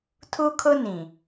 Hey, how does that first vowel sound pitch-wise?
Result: high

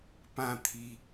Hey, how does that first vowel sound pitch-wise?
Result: falling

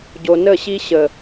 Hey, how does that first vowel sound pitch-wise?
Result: low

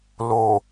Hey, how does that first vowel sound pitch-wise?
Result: low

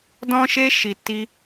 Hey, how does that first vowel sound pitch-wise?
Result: high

